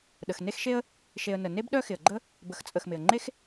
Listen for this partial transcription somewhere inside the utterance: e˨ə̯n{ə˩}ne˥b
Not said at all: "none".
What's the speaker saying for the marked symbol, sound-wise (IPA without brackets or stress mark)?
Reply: ə˩